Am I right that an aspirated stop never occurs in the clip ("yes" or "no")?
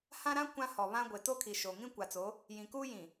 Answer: no